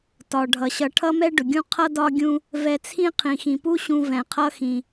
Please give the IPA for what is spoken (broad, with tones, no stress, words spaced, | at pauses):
tɒ˩ ɖʱʌ˩ɕʌ˨ ʈʰʌ˥mɛ˥ ɖʊ˩ ɡʲũ˦ qʰʌ˥dɒ˦ɡʲũ˦ | vɛ˨t͡sʰĩ˦ qʰĩ˩xĩ˩pu˥ɕũ˨ vɛ̃˩qʰʌ˦xĩ˩